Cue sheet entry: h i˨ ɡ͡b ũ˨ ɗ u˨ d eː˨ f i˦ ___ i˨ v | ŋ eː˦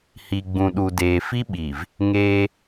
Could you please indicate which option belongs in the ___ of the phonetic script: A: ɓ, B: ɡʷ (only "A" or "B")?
A